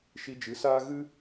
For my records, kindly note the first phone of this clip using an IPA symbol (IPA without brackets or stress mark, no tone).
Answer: ʃ